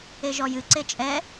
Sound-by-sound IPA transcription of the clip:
e ʒ ɔ j ɨ ǀ e t͡ʃʼ ɛ

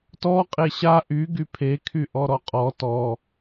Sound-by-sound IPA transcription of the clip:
t ɔ qʼ e ɕ a ʔ y ɡ y pʰ e kʰ y ʔ ɔ ɾ ɔ qʼ ɔ t ɔ

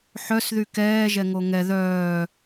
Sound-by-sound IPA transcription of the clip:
ħ œ s ð y k ɛː ʒ ɛ ŋ o ŋ ɛ ð œː

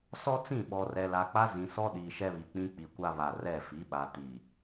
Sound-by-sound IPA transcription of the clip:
s ɔ˦ t͡s ĩ˦˨ ɓ ɔ˨ r ɛ˨ l a˨ k͡p a˦ z ĩ˨ s ɔ˦ ɗ iː˨ ʃ ɛ˦ β i˨ k͡p ĩ˦ k͡p i˨ kʷ a˦ β a˨ r ɛ˦˨ f i˨˦ ɓ a˨ t i˨

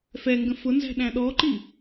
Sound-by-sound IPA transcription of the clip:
f ɛ ŋ ɡ ə̃ f ʊ n z æ̤ ɗ æ̃ ɗ ɔ ǃ i

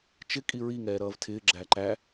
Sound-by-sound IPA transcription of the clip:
t͡ʃ ɪ kʼ i ɹ i ŋ ɛː ɾ ʌː v tʰ ɪː ɡ͡ǁ æ ǃ æ

